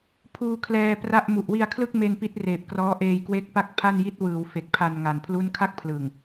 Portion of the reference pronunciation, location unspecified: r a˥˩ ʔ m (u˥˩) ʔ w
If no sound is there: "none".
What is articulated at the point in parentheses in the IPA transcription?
u˨˩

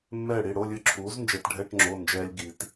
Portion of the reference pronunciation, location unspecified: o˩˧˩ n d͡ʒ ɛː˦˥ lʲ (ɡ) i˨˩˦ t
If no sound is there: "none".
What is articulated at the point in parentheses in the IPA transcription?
ɡ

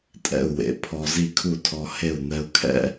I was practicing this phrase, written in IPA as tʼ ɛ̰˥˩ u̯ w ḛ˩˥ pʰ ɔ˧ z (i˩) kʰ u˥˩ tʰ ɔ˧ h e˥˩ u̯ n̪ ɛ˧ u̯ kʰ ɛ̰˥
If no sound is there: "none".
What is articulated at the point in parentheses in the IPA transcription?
i˥˩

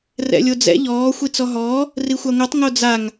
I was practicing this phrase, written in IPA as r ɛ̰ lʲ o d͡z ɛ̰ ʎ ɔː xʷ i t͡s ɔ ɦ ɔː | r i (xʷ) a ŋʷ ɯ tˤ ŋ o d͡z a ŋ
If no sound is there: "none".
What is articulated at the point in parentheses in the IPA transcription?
xʷ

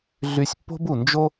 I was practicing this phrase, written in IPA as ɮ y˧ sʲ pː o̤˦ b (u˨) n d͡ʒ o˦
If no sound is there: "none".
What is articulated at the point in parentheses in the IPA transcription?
u˨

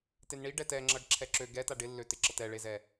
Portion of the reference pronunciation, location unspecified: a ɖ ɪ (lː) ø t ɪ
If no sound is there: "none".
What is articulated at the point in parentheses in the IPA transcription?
lː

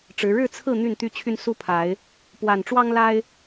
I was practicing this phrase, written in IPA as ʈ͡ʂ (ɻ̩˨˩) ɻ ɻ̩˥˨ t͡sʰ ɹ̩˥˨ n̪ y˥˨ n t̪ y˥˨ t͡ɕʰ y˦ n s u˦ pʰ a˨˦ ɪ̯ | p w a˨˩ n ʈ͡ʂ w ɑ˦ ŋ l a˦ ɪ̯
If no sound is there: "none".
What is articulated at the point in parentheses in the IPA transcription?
ɻ̩˨˦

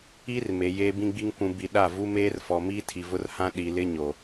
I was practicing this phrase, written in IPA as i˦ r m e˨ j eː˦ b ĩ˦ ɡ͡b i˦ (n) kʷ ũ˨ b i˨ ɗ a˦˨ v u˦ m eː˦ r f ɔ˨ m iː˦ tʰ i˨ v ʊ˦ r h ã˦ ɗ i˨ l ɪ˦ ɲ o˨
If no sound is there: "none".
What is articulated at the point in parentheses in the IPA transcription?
ŋ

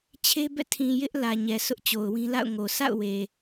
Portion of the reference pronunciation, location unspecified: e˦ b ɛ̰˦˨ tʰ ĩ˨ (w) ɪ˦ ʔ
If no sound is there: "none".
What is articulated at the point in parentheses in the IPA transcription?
j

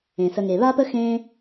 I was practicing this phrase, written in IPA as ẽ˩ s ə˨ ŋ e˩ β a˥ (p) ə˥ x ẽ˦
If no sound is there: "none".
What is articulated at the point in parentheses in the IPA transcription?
p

